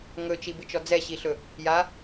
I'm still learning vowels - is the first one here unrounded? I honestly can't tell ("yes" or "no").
no